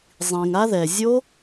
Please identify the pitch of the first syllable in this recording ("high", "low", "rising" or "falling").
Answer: low